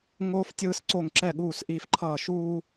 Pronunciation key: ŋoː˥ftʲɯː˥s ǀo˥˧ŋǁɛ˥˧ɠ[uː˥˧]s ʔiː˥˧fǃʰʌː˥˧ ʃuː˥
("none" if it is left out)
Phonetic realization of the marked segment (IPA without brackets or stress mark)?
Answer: uː˥˧